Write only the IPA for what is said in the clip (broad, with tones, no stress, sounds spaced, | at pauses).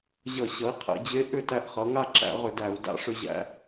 ʑ ʌ˧˩˧ ɕ ʌ˩˥ i̯ qʰ ɛ̰˩˧ d͡ʑ e˧˥ ʔ ʏ˥˩ t æ˧ ʔ χ ʌ˩˧ ŋ a˥˩ ǁ æ̰˧˩˧ ʁ ʏ˧˩˧ d æ˧˩˧ u̯ d a̰˧˥ ʂ ʏ˧ ʑ æ̰˧